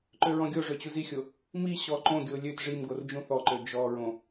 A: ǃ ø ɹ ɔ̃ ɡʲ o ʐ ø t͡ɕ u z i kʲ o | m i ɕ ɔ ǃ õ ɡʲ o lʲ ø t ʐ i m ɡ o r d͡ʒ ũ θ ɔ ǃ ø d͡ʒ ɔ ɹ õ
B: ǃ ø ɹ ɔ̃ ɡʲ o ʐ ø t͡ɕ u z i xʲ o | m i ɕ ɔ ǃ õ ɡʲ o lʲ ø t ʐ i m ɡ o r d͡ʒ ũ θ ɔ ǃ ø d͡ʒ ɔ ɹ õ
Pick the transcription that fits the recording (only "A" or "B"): B